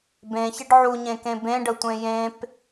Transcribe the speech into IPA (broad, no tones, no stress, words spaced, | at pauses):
bẽçɪɖ ʕuɲẽkẽ bẽɖətʷẽ jẽp